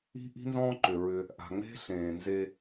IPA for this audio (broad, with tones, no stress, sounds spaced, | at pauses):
i̤˦ ʔ i̤˦ n z ɔ̃ː˦ ǃ ʏ˨ ɹ ʏ˧ | ʔ a̤˨ ŋ͡m e̤˦ ɬ ẽː˨ n z e˧